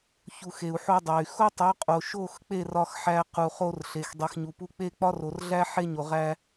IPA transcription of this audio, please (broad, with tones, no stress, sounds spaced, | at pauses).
ç u˨ x e˨ u̯ ħ o˧ dˤ æ˨ y̯ x o˦ tˤ o˨˦ qʼ o˨ ʃ o˦˨ x k͡p e˦˨ r ɒ˧ x ħ æ˧ q u˨ χ o˧ r ɬ e˨ x dˤ i˨ x ɲ u˨ p u˧ k͡p e˦ k͡p ɒ˦ r o˨ r ɮ æ˦ ħ e˦ ɲ o˨ ʁ æ˧